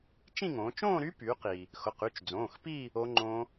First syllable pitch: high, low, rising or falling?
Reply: falling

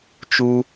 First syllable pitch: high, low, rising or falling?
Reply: high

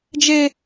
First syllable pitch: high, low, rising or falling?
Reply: high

